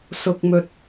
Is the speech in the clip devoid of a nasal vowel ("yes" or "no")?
yes